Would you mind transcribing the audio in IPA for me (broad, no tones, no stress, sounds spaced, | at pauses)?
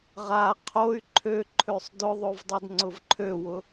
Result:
ʁ a qʰ o y̯ ǃʰ ø ǃʰ ø sˤ d ʊ ðˤ o v dˤ o d ŋ͡ǀ ʊ v ǃʰ ø w ʊ